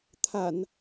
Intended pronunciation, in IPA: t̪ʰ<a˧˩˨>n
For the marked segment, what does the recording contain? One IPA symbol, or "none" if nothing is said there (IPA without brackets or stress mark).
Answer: a˧˩˨